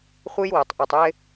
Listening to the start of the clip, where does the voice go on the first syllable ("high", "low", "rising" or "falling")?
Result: high